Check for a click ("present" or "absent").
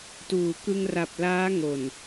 absent